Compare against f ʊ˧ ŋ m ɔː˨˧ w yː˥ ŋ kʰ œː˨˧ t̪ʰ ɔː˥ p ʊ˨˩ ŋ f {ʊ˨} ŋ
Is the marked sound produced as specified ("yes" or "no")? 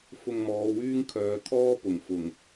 no